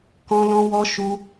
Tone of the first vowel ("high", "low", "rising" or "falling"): high